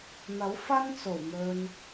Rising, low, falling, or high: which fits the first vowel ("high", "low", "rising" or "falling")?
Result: rising